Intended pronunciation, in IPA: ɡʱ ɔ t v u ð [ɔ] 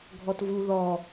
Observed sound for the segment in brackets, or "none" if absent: ɔ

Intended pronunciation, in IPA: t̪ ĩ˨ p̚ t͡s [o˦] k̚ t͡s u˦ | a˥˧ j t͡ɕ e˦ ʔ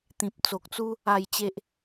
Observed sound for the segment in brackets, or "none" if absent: o˨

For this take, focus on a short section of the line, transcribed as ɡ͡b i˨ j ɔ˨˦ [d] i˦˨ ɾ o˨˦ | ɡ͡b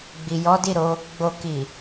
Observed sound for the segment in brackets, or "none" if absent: d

